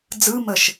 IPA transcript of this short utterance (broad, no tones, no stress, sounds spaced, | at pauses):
d͡z ɯ m ə ʃ